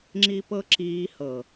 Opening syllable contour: high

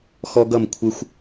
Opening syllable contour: high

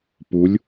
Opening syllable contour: rising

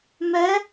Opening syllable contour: rising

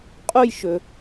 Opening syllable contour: falling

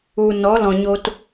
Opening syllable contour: low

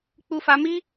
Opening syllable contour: high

